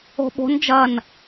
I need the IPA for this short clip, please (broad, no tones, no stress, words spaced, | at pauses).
o̤ɓo̤n d͡ʒɐn